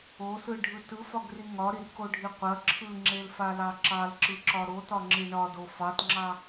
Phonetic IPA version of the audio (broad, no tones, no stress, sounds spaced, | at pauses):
o s ɯ ɖʱ ɯ t ɯ f ɒ ɡ r i ŋ ɒ ɾ i r k o ɖʱ i qʷ ɐ ǁʰ ɯ ŋ͡ǁ e l f a l ɑ ǁ ɑ l ǁ ɯ ǁ ɒ ɾ o t ɒ ŋ͡ǁ i ɳ ɒ d o f ɑ t ŋ͡ǁ ɑ